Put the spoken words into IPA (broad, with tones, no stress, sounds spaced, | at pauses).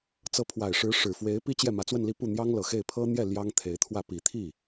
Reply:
t͡s ɤ˧˥ pʰ w a˨˩ ɪ̯ ʂ ɻ̩˧˥ ʂ ɻ̩˨˩ f w e˧˥ ɪ̯ p i˥ t͡ɕ j ɛ˥˩ m ä˧˥ t͡s w ə˥˧ n l i˥˧ p u˥˩ n̪ j ɑ˥ ŋ l ɤ˨˩ x e˥˩ ɪ̯ pʰ ɤ˥ n̪ j ɛ˥˩ l j ɑ˥ ŋ t̪ʰ e˧˥ ɪ̯ t̪ʰ w ä˥˩ p i˨˩ t̪ʰ i˥˩